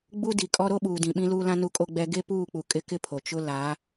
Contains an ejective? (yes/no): yes